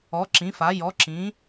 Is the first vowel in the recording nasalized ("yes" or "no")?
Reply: no